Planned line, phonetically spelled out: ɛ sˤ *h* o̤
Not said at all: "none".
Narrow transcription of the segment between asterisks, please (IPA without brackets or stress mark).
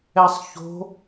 ç